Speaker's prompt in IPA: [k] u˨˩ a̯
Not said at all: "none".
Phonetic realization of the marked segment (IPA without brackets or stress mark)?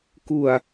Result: k